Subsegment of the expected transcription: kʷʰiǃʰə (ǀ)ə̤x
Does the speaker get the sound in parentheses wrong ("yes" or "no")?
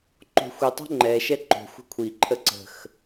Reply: no